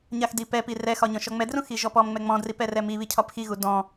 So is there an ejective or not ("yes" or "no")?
no